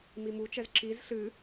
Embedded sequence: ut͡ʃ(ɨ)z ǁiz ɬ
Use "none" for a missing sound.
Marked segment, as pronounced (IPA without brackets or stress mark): ɛ